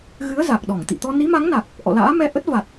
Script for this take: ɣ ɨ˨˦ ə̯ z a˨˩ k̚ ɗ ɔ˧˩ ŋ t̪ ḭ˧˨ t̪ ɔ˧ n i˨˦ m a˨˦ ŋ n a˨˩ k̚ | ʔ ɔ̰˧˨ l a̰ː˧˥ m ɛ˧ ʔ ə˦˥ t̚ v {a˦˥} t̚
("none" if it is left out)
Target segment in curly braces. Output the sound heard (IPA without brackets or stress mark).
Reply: a˨˩